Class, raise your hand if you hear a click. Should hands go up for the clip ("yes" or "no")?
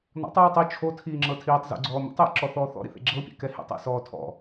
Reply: yes